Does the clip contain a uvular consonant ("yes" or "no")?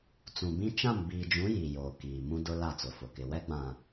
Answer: no